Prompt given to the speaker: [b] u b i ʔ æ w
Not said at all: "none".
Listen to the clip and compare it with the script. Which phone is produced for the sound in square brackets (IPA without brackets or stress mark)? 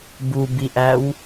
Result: b